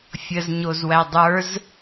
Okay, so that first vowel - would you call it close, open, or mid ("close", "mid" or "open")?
mid